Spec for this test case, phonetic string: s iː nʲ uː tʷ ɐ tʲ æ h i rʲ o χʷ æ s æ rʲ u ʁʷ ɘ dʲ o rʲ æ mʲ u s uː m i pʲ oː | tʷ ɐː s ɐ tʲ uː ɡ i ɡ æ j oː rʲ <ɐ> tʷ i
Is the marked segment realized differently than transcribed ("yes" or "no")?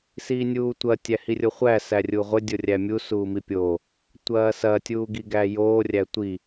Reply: yes